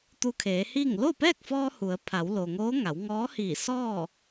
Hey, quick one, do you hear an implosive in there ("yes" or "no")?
no